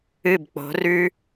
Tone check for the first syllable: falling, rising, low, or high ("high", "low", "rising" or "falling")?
falling